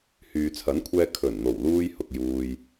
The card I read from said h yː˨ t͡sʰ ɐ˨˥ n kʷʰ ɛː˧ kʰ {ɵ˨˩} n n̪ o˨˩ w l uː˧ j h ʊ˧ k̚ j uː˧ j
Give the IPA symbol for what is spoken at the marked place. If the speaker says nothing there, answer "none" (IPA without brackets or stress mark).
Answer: ɵ˨˩